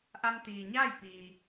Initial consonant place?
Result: glottal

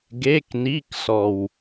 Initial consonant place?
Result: velar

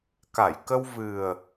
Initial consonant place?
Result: velar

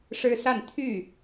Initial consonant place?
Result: retroflex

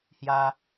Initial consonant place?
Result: glottal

